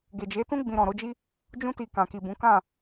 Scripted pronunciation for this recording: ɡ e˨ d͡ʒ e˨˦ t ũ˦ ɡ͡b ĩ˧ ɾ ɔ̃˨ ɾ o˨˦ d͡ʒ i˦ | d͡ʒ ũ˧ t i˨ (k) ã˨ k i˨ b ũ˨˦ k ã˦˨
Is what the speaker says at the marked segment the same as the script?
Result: yes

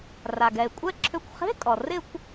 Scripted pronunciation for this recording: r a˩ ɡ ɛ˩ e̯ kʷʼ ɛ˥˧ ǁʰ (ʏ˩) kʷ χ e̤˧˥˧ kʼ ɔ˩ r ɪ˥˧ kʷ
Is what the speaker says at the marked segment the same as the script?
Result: no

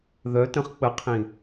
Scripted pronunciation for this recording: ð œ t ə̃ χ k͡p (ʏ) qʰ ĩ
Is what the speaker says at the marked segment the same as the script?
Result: no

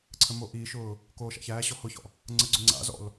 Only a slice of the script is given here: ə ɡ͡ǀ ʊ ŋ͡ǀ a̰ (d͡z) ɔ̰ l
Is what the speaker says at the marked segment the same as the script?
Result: no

